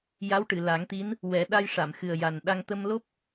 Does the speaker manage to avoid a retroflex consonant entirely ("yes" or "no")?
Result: no